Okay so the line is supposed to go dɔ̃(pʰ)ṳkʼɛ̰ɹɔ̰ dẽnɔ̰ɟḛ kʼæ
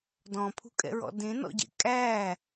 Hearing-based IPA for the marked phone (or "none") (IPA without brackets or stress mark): pʰ